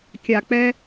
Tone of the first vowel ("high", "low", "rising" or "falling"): low